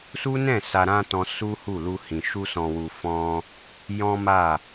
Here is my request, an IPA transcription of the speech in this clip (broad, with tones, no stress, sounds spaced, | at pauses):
s u˦ n ɛ̃˦˨ s a˧ ɾ ã˦ t ɔ̃˧ s u˦ h u˦˨ l u˧ h ĩ˨ ʃ u˧ s ɔ̃˨ w u˨ f ɔ̃˧ | j ɔ̃˦ m a˦˨